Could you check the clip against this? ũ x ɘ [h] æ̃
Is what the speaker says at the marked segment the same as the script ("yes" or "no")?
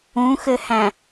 yes